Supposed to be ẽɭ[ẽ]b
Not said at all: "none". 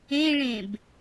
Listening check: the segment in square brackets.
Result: ẽ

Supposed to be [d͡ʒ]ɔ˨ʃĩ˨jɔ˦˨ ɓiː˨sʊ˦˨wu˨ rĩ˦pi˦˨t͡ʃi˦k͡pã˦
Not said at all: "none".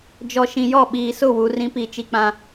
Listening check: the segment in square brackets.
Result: d͡ʒ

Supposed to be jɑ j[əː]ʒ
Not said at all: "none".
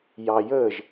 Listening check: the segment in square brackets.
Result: əː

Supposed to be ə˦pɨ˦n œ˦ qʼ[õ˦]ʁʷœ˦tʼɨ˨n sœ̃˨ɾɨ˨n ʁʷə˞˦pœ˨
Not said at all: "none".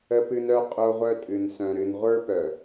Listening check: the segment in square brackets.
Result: o˦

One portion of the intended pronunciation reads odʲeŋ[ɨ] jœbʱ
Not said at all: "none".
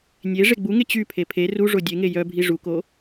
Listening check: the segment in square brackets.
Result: e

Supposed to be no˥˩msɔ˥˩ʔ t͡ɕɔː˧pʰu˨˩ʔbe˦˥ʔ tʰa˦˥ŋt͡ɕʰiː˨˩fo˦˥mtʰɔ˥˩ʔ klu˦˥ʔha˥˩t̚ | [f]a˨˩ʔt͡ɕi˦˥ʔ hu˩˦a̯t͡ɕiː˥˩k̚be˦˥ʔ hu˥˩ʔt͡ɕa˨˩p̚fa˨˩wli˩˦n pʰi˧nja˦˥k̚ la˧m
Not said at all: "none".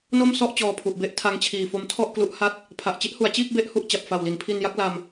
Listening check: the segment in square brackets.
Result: pʰ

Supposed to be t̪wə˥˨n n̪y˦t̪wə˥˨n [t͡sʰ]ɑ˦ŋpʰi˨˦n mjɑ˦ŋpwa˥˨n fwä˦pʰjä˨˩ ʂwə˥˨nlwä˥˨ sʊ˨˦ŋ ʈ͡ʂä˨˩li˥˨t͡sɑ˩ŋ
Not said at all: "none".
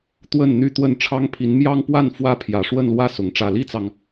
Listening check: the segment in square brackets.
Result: ʈ͡ʂʰ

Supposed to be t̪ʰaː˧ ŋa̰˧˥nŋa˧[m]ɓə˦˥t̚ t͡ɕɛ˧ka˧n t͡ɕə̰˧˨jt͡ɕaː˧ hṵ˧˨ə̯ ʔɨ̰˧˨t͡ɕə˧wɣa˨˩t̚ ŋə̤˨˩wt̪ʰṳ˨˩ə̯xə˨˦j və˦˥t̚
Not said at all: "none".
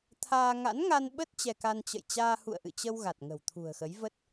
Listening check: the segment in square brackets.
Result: n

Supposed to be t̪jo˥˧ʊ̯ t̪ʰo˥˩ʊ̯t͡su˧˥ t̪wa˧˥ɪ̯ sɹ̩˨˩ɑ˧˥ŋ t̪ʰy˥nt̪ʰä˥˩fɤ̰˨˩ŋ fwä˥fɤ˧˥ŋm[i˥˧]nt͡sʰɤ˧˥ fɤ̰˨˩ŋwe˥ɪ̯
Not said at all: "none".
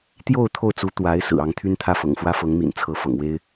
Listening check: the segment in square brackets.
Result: ḭ˨˩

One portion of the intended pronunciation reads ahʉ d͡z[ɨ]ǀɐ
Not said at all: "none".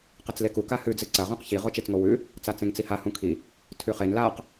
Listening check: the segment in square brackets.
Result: ɨ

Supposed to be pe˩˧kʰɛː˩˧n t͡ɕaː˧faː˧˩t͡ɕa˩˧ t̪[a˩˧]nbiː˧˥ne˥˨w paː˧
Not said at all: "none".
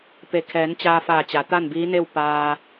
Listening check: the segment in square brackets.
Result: a˥˨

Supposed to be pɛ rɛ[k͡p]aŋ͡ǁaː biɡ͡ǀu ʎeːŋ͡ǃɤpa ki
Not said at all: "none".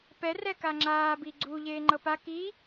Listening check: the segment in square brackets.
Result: k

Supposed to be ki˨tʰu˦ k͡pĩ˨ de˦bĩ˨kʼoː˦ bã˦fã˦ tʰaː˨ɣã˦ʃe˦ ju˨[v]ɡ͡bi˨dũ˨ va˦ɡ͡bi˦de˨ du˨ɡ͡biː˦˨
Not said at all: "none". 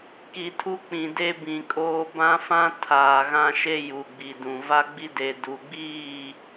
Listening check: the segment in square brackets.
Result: none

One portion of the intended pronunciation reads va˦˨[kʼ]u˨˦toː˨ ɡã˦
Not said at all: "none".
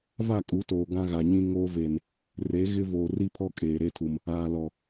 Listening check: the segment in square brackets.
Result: kʼ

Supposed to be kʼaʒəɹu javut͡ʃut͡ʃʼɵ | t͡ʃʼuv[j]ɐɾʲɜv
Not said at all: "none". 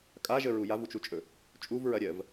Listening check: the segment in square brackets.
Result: ɹ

